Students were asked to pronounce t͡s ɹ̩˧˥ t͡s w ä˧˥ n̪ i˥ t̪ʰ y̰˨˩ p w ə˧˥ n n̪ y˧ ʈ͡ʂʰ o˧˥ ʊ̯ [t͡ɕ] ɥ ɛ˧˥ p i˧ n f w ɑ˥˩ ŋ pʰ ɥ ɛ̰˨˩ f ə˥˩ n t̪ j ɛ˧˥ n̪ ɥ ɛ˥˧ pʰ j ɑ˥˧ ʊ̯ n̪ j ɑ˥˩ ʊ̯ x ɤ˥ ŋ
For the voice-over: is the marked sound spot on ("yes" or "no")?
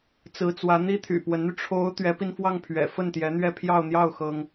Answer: no